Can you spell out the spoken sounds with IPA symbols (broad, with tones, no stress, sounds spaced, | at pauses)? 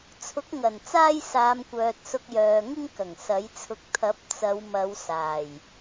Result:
t͡sʰ ʊ˨˥ k̚ ŋ ɐ˨˩ n t͡s aː˥ j s aː˨˧ m kʷ œː˨ t̚ s ʊ˧ k̚ j œː˨ ŋ ɪ˥ ŋ k ɐ˨˩ ŋ s ɐ˨˥ j t͡sʰ ʊ˧ k̚ t̪ʰ ɐ˨˥ p̚ t͡s ɐ˨˧ w m ɐ˨˧ w s aː˨˩ j